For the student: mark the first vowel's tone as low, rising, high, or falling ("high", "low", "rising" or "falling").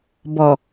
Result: low